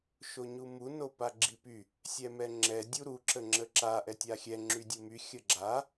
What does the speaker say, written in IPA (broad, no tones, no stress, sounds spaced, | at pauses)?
ʃ o ɲ u m u n o p a ɡ͡ǁ i p y | sʲ ɛ m ɛ ŋ͡ǁ ɛ dʲ u ɾ u ǁ ə ŋ͡ǁ ə ǁ a ʔ ɛ tʲ a xʲ ɛ ŋ͡ǁ y dʲ u m y xʲ ə ɡ͡ǁ a